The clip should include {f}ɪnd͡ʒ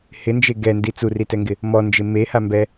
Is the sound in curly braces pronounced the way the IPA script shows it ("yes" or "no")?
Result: no